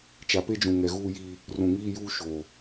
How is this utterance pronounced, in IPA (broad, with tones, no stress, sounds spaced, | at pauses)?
t͡ʃ a˨ p e˦ d͡ʒ ũ˨ ŋ ɛ˨ ɣ uː˦ j iː˦ | r ũ˨ ŋ iː˦ j uː˦ ʃ oː˨